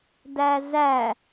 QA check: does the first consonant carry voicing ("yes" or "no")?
yes